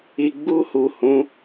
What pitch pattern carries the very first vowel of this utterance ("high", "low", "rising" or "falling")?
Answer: low